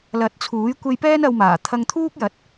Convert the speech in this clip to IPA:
l ɐ˨˥ t̚ t͡sʰ uː˨˥ j kʷ e˧ j p ɛː˥ n ɐ˧ w m aː˨˩ t̪ʰ ɐ˧ ŋ t̪ʰ uː˥ k̚ j ɐ˨˥ t̚

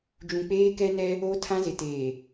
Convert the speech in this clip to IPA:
d͡ʒ ũ˨ k͡p eː˦ k ɛ˦ n ɛ˦ | o˦ tʰ ã˦ z ɪ˨ t eː˨

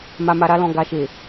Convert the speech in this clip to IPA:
m a˨ m a˨ ɾ a˧ l ɔ̃˨ ɡ a˨ ʃ e˨

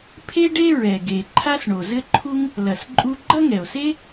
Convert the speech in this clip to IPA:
pʰ e˥ ɖ e˥ ɹ ɛ˩ ɡ e˩ ǃʰ a˥ s ɳ o˩ z ɘ˥ ǃʰ u˥ ŋ | l ɐ˩ s ǃʼ u˥ ɡ͡ǃ ɐ˥ ŋ ɛ˩ o̯ s e˥

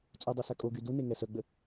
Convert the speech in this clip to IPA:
t͡sʼ u dˤ œ s a kʼ o ɡ y d u n e ŋ ɛ s œ ɡ͡b ə

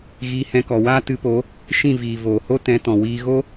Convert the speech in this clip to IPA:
ɣ iː˧ h ɛ̃˧ k ɔ˨ w aː˦ t ɨ˨˦ p o˨˦ | ʃ ĩ˦˨ v iː˨ v oː˨ h o˦ t ɛ̃˨˦ t ɔ̃˨ w iː˧ ɣ o˦

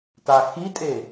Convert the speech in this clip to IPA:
t a x i tʼ e

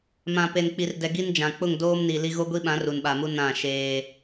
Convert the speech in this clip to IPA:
m ã˨ p e˨ n k͡p i˨ r d ɛ˨ ɡ i˦ n d͡ʒ ã˨ k͡p ʊ˦˨ ŋ d oː˦ m n i˨ l i˦ ɣ o˦ ɡʷ i˦ ɓ ã˨˦ r u˨ n ɓ a˨ m u˦ n ã˦˨ ʃ eː˦

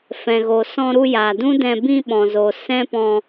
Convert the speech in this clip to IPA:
f ɛ̃˨ ɣ o˨ s ɔ̃˧ ɾ u˧ j a˨ d ũ˦ d ɛ̃˧ b ĩ˧ ɓ ɔ̃˨ z o˨ s ɛ̃˦ p ɔ̃˧

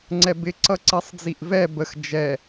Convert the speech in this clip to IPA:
ŋ͡ǀ ɛ b ɪ ǀ ʌ ǀ i sˤ d͡z i ʔ v ɛ b ə x d͡ʒ ɛ

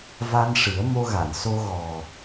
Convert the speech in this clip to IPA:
v a˧ n ʂ ɨ˨˩˦ ə̯ m o˧ ɣ a˨˩˨ n s o˧ ɣ ɔ˨˩

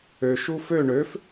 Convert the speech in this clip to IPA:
ø ʃ u f ø ɳ ø f

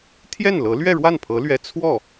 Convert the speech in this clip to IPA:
t̪ʰ j ɛ˥˩ n l ɤ˧˥ l ɥ ɛ˥˧ ɻ w a˥˩ n pʰ ɤ˧˥ l ɥ ɛ˧˥ t͡sʰ w ɔ˥˩

